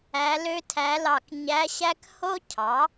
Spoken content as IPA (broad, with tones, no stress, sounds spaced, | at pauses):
æ˧˥ l ø˥ tʰ æ˧˥ l ɑ˦˨ k ɲ æ˧˥ ɕ æ˥ k h o˥ cʰ ɑ˩˥